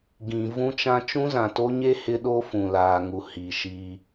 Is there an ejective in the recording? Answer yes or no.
no